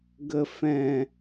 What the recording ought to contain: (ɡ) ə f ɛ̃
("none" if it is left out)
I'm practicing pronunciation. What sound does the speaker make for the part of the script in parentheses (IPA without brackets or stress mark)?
ɡ